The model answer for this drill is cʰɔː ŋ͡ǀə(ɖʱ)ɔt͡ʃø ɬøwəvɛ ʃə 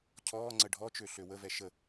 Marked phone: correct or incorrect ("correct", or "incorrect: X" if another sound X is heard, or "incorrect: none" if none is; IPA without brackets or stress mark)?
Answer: correct